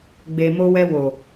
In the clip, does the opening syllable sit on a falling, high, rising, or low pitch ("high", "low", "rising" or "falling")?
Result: low